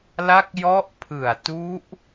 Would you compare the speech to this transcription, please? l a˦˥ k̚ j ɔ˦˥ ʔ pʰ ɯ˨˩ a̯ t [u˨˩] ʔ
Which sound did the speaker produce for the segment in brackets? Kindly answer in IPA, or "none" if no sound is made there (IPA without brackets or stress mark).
u˦˥